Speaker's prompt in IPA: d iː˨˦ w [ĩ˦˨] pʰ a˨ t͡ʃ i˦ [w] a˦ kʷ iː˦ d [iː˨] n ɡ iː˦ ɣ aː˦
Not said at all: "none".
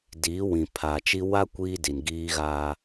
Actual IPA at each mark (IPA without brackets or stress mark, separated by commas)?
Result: ĩ˨, w, i˨